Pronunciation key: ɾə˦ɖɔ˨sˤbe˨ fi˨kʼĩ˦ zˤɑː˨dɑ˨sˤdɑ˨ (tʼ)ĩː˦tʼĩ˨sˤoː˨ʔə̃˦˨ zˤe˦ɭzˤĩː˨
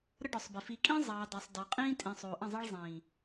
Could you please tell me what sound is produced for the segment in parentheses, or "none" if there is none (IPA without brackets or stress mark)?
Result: qʼ